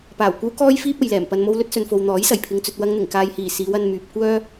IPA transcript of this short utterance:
p aː˨˩ w kʷ ɐ˥ w k ɔː˥ j f iː˥ p̚ ɐ˨ j l ɛː˨˩ m p ɐ˨ n m o˧ w l ɵ˥ t̚ s ɵ˨ n f o˨ w n̪ ɔː˨˥ j s ɐ˨˩ j pʰ ɪ˨ ŋ t͡s ɵ˨ t̚ w ɐ˧ ŋ n̪ ɪ˨˩ ŋ k aː˨ j h iː˨˩ s iː˨˧ w ɐ˧ n m yː˨ p̚ kʷ œː˥

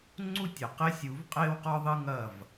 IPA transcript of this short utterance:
ŋ͡ǀ u˦ tʲ ɐ˨ q e˦ sʲ u˨˦ v qʼ eː˦ w q ɔ˦ ðˤ ɨ˦ ŋ ɐ˦˨ v

